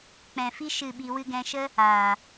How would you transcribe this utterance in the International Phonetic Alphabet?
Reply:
k͡p ɛ̃˨ f i˦ ʃ ɨ˦˨ ɓ i˧ w ɨ˧ ɡ ɛ̃˧ ʃ ə˦ | aː˨

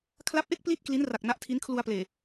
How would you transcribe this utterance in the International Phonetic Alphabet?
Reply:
kʰ l a˦˥ p̚ ʔ e˥˩ k̚ p l i˥˩ t̚ k l i˦˥ n r a˨˩ k̚ n a˦˥ ʔ tʰ i˦˥ n kʰ l u˧ a̯ p l eː˨˩

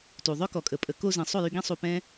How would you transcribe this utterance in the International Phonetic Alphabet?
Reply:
t u˨ ðˤ œ˦ k ɔ˨ kʼ ə˨ pʼ ə˨˦ k o˧ z ĩ˨ sˤ o˦˨ j y˧ ɡ ĩ˦ sˤ u˧ p ɛ̃˦

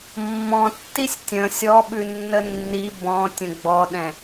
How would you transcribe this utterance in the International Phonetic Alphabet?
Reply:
mː ɔ̃ tː i sʲ tʲ ə̃ sʲ ɔ ɓ ʉ nː ə nː i b ɔ̃ tʲ ə̃ ɡ͡b ɔ ɗ ɛ̃

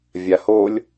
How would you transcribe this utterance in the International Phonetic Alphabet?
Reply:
vʲ a h o lʲ

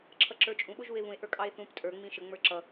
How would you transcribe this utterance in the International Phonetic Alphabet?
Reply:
ǁʰ ʌ ǁ ə˞ t͡ʃʼ ũ ɓ ʊ ʒ u e̯ β ũ e̯ ʔ ə˞ kʼ ɑ e̯ θ ũ p tʼ ə˞ ŋ͡m ĩ ʃ ə ŋ͡m ə˞ ǁ ʌ

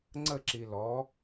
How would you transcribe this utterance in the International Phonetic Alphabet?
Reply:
ŋ͡ǀ ə ǁ i l ɔ

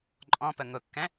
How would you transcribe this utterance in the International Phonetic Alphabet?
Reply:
ǃʼ ɔ̃ p ə ŋ ʊ kː ɛ̃

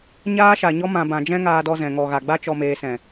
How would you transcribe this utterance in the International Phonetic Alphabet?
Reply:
ɲ aː˧ ʃ a˨ ɲ ɔ˧ m ã˨ b ã˨ d͡ʒ ɛ̃˦ ŋ aː˧ d ɔ˧ z ɛ̃˨ ŋ ɔ˨ ɣ a˨ ɡ͡b a˦ t͡ʃ ɔ˨ m eː˨ s ɛ̃˨

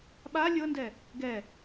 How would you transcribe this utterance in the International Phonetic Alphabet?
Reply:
ɓ a lʲ ɤ n d ɛ | ɡ ɛ

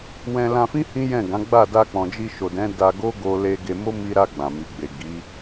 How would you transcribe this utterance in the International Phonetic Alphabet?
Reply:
w ɛ̃˧ l ã˧ f ĩ˦ h ĩ˦ j ɛ̃˦˨ ɡ ã˨˦ ɡ͡b a˦˨ d a˧ k͡p ɔ̃˨ d͡ʒ i˧ ʃ o˨ d ɛ̃˨˦ d a˧ ɡ o˦ ɡ o˧ l e˧ ɡ e˧ m o˦ m i˧ ɾ a˧ ɡ͡b ã˨ m i˨ ɡ͡b e˨ ɡ i˨˦

